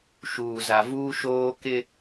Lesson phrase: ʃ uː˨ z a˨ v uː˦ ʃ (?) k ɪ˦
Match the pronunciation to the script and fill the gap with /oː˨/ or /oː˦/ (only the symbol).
oː˦